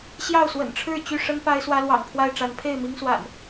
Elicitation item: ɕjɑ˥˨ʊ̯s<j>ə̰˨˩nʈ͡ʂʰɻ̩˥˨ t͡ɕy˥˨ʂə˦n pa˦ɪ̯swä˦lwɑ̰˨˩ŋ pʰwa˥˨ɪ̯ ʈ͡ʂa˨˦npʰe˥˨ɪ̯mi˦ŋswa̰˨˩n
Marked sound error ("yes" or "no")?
yes